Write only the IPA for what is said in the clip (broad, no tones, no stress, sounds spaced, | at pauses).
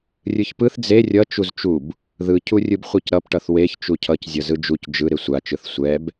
rʲ ɯ ç p ɯ θ d͡z e rʲ ʌ t͡ʃ u z t͡ʃ u b | ð ɯ cʰ u rʲ ɯ b χʷ ɯ c ɾ ʌ p ʈ ʌ θ w e ç t͡ʃ u cʰ ʌ c zʲ ʌ z ɯ d͡ʒ u c d͡ʒ ɯ ɾ e sʷ a t͡ʃ ɯ θ sʷ ɛ b